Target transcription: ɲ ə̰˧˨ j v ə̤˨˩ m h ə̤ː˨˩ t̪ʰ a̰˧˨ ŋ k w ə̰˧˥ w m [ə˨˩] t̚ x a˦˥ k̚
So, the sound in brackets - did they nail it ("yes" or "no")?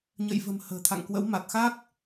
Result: no